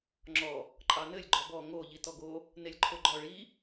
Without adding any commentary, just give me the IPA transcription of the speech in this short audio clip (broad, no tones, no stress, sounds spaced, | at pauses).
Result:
ŋ͡ǁ ɔ | ǃʼ ɑ n ɘ lʲ ɡ͡ǃ ɔ b ɔ ŋ o ʎ i t ɔ ɡ o | n e lʲ ǃʰ o ɡ͡ǃ ɔ ɭ i